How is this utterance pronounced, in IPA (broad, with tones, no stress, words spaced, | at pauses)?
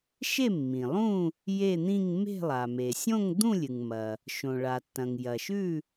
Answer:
ʃe˥˨mːĩ˩lˠũ˥˨ | je˥˨n̪ĩ˥˨ŋ me̤˥˨lˠa˩ me˩sʲõ˥˨ŋ d̪ũ˥˨lʲɨ˩ŋmɐ˩ | ʃõ˩ɭa˩tːɐ̃˩ŋ jɐ˩ʃʉ˥˨